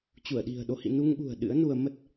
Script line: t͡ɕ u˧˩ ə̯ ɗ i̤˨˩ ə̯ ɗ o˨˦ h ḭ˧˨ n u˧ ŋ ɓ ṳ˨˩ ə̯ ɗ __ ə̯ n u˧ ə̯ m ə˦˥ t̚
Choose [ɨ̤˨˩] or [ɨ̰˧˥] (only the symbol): ɨ̰˧˥